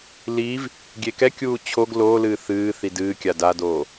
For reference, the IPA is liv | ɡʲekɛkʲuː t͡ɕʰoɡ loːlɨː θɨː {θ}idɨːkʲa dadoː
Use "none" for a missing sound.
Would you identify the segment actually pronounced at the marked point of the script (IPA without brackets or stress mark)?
θ